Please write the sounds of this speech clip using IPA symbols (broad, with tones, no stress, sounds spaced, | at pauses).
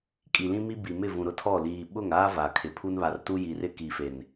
kʼ i˨ l ĩ˦ m i˦ b i˨ m ɪ˦˨ v ũ˨ ɾ ʊ˦ tʰ ɔ˦˨ l iː˨ ɓ ʊ˦˨ ŋ aː˦ v a˨ kʰ ɪ˨ pʰ u˦ n β a˨ r t u˦ j i˨ r ɪ˦ k i˨ f e˨ n